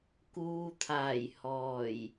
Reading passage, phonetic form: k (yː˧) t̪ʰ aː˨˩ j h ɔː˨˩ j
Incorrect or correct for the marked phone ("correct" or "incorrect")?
incorrect